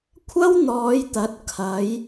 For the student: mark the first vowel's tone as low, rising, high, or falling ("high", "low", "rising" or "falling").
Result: high